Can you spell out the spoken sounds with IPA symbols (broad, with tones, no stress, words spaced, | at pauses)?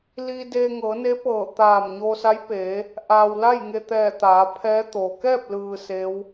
liː˧deː˧ ŋɤː˩˧ne˧˥ pɤː˧˩ t̪aː˧˩mɲoː˧sa˧˥jpeː˩˧ | ʔaː˩wla˥˨jŋe˧˩t̪ɛː˧˩ t̪aː˩˧pʰɛː˧˥t̪o˩ kɛː˥˨p̚lɯː˩ se˧˥w